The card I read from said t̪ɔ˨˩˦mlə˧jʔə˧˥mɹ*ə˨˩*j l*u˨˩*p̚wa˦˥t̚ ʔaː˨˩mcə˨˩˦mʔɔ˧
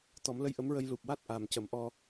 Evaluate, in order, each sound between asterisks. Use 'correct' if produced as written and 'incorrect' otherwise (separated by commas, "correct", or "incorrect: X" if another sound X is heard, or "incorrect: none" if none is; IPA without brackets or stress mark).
incorrect: ə˧, correct